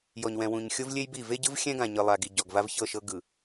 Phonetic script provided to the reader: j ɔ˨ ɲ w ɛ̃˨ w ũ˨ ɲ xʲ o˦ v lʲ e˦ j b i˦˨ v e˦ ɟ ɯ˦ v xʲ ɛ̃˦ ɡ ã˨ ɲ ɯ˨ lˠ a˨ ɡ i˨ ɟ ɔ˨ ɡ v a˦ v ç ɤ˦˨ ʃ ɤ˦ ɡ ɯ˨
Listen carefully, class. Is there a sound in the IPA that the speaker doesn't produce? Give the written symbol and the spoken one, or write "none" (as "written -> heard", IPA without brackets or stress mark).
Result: none